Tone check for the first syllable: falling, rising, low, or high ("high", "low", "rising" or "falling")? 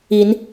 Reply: rising